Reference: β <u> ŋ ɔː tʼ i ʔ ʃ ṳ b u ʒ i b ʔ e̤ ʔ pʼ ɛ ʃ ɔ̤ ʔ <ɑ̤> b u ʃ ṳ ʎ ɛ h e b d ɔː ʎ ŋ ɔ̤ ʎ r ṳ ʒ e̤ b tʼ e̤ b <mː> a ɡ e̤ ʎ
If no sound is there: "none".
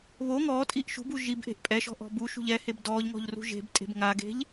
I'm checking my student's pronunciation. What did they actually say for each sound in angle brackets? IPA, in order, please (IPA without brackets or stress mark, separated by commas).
o, ɔ̤, ŋ